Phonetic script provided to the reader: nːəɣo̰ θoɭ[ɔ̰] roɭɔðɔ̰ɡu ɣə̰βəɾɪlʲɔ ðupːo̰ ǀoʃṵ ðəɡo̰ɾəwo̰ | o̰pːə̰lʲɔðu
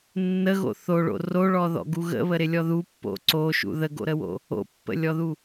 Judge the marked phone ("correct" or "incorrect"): incorrect